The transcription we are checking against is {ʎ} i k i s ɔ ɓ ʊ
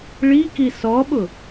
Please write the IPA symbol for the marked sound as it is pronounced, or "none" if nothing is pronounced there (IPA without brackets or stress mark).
ɭ